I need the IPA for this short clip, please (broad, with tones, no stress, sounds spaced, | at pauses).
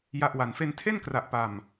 j a˦˥ ʔ w a˨˩ n f e˧ n tʰ e˥˩ n k r a˨˩ ʔ p a˨˩ m